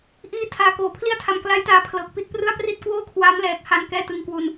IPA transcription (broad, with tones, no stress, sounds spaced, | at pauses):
ʔ iː˦˥ tʰ aː˨˩ k oː˨˩ pʰ l i˥˩ a̯ tʰ a˨˩ m k l a˦˥ j t aː˧ pʰ l ɤː˨˩ k̚ p i˦˥ t̚ p r ɯ˥˩ a̯ p r i˥˩ t̚ k w oː˥˩ kʰ w aː˦˥ m l ɛː˨˩ k̚ h a˧ n k ɛː˥˩ t ɯ˧ ŋ k w u˧ n